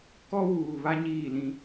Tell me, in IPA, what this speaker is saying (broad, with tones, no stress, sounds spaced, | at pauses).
k ɔ˦ w uː˨ β a˦ ɲ iː˦˨ l ĩ˦